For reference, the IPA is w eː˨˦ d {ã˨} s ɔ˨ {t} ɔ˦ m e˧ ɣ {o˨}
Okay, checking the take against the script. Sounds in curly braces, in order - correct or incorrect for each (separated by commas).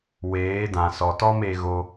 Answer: correct, correct, incorrect